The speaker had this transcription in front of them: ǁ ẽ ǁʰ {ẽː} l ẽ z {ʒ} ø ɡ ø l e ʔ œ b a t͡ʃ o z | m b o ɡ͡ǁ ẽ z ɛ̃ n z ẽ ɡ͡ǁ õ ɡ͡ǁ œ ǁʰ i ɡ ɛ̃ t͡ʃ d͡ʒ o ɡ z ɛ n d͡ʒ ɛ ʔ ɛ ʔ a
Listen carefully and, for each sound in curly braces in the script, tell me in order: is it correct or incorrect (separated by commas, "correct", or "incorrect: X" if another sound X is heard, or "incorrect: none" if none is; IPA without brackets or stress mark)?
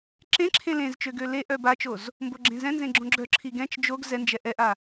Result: incorrect: ẽ, incorrect: t͡ʃ